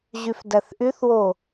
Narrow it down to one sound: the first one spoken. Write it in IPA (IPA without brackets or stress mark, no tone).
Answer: ʑ